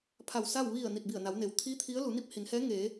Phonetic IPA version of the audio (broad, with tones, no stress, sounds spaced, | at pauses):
pʰ a˧˩ w s a˥˨ w ʋ i˧˩ ə̯ n i˧˩ t̚ b i˧˩ ə̯ n a˩˧ w n e˩ w t̪ʰ i˧˥ t̪ʰ i˧˥ ə̯ l u˩˧ n i˥˨ p̚ h i˩˧ n h ɛː˧˥ ŋ eː˩˧